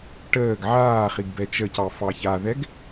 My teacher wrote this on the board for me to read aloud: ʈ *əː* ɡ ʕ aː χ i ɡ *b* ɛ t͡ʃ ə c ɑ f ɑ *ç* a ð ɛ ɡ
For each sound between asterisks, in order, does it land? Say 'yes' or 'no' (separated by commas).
yes, yes, yes